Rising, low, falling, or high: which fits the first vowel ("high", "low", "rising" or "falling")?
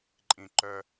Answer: high